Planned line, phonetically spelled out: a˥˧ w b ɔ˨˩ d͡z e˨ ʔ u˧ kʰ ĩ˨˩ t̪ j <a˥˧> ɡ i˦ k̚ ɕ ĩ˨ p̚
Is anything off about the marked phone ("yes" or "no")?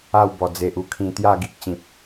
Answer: no